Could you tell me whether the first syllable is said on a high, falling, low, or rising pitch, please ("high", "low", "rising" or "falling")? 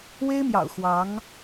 high